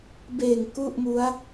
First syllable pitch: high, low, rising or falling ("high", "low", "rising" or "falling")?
low